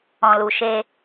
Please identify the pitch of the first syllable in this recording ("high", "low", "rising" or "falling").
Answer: low